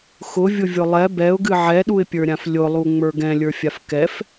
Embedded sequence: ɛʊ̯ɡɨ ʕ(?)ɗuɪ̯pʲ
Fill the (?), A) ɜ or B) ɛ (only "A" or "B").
B